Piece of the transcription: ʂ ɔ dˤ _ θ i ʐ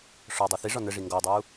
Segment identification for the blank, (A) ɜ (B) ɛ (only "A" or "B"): A